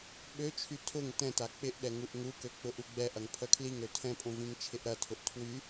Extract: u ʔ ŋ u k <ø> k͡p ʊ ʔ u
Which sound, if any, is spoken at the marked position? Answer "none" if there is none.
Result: ø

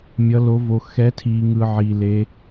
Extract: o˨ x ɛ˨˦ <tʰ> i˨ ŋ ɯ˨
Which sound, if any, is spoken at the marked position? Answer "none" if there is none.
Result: tʰ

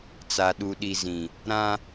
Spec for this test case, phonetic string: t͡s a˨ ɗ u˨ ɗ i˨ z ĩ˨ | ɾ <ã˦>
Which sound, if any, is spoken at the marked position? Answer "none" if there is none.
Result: ã˦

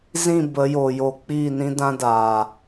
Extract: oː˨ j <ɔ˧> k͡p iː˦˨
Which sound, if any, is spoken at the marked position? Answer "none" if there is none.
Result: o˧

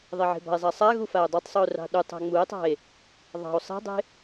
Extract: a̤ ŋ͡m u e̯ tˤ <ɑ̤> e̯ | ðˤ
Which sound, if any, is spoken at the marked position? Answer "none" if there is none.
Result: ɑ̤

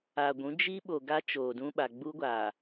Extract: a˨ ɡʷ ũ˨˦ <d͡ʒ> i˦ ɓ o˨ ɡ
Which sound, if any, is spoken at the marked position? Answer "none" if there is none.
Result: d͡ʒ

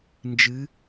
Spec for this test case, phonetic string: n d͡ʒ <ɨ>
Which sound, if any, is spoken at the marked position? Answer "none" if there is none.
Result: ɨ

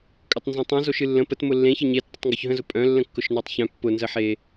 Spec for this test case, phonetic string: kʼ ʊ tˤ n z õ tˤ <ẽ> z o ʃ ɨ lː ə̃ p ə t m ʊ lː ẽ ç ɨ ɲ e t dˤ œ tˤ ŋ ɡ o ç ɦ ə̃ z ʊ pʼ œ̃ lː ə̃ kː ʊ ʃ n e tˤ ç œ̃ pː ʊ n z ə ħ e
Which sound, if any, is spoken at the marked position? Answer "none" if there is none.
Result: ẽ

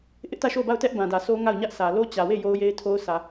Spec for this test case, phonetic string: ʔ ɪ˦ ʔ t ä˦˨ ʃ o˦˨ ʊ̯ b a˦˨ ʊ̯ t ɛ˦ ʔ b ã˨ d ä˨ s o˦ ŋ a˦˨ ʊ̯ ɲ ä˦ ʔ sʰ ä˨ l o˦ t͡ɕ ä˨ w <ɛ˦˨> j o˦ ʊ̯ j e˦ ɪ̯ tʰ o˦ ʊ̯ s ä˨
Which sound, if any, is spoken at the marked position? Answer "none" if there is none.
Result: e˦˨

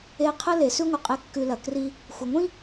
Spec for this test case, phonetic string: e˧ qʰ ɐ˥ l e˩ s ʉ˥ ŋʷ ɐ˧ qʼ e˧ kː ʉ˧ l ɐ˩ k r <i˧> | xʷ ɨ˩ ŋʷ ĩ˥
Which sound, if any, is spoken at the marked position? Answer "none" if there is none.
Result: i˧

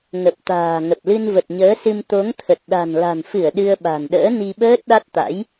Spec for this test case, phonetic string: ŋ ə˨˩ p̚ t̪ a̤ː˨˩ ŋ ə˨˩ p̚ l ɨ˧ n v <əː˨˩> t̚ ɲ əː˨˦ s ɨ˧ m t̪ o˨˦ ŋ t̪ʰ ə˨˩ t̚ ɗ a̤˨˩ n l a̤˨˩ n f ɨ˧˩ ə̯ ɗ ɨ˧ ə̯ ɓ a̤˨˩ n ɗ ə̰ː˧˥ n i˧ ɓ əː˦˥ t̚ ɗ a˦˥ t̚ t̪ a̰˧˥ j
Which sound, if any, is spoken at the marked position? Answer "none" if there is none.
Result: ə˨˩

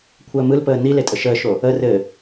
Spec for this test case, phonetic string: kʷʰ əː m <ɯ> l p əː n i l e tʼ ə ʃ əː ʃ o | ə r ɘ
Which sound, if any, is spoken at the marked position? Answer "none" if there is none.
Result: ɯ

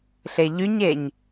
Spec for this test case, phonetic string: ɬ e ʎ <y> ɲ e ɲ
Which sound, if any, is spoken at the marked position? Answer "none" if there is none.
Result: y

